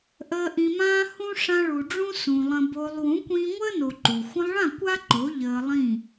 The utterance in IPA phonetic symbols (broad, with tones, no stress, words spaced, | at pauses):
ʔəː˧ʔĩ˨mãː˦ hũ˦ ʂã˧ɭu˨ɖ͡ʐũ˦ sũ˧lˠə̃˦ bo˧lˠ wũ˨˦kʷĩː˧ŋʷəː˦no˨ ǃu˨ xʷə̃˧lˠɭã˦˨kʷ a˦ǃo˨˦ ʎəː˧lˠĩ˦˨